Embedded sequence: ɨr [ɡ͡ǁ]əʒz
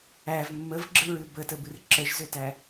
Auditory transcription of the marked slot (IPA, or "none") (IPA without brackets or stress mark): ǁ